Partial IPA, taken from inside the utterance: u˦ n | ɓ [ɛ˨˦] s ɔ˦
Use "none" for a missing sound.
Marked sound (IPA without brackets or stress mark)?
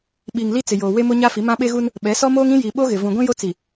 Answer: ɛ˨˦